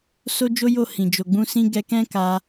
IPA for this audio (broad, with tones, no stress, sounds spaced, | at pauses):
s o˦ d͡ʒ o˦ j o˦˨ h ĩ˨ d͡ʒ o˨ ɡ͡b ũ˧ s ĩ˧ ɡ ɛ˦ k ɛ̃˦ k a˧